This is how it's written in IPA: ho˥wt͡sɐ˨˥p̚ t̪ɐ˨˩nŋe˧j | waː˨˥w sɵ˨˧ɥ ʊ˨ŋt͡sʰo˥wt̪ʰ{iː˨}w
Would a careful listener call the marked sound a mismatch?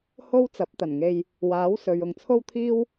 yes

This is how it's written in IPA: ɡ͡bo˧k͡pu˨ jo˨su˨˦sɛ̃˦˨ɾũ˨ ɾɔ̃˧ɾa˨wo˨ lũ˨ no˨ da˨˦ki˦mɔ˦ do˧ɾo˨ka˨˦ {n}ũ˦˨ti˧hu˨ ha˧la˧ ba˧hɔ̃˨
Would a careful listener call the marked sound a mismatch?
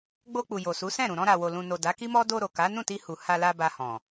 no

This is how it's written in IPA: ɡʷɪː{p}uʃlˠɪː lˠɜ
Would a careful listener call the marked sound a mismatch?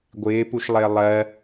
no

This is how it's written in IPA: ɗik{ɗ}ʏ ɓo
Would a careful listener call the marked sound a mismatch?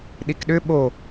no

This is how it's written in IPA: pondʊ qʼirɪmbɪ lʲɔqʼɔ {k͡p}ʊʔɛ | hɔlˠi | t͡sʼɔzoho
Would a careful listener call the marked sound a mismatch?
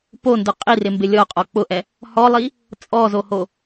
no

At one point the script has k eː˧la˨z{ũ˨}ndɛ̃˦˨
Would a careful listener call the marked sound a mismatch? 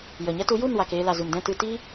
yes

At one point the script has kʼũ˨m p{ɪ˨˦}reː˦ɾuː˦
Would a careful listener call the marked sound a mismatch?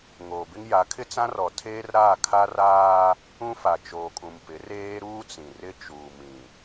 no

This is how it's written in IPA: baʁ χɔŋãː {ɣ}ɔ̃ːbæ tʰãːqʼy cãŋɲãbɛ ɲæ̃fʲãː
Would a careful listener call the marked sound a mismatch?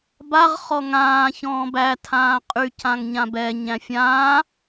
yes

